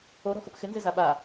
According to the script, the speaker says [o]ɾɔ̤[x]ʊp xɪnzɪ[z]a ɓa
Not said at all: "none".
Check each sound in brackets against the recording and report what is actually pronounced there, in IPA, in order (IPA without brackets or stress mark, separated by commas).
o, x, z